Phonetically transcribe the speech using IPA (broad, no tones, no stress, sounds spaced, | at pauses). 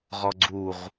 ʁ ɔ ɡ͡ǀ u ʁ